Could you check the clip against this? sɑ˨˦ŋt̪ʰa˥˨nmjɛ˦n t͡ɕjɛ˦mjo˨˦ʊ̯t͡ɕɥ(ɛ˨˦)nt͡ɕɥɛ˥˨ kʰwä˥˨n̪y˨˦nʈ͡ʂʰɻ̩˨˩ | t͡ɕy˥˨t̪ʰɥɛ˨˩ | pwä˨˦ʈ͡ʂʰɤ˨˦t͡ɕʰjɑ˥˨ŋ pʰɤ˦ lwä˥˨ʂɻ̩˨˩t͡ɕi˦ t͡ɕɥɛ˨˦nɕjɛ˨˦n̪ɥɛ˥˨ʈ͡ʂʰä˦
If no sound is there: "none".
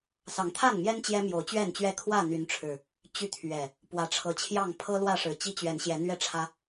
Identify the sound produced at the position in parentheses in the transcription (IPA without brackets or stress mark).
ɛ˥˨